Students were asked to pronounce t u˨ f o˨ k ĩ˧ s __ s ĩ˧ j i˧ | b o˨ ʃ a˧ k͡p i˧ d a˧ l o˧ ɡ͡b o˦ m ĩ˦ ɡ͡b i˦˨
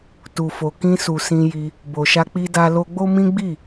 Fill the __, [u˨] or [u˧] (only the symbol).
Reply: u˨